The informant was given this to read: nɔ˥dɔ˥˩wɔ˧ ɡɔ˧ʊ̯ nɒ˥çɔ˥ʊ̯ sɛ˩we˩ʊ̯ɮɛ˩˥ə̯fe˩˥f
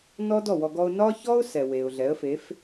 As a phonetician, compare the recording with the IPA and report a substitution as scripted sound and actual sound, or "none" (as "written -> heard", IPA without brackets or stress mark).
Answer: none